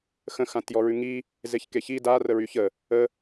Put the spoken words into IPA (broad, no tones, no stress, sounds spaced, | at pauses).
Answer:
x ə̃ x ã t j ɔ ɹ ʉ ŋ i | z e ç k e ç i d a r ə ɹ y ç ə | ə